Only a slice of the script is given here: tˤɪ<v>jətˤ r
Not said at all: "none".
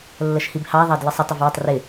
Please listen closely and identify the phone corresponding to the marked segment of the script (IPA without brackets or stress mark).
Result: v